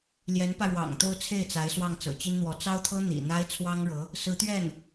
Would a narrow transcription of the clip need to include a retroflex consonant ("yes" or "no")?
yes